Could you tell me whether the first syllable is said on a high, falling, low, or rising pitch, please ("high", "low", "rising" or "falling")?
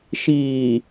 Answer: low